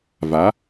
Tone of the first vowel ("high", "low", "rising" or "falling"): rising